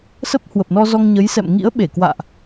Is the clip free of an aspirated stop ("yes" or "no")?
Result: yes